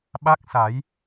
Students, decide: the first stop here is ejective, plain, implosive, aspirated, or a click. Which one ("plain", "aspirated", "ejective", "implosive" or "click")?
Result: implosive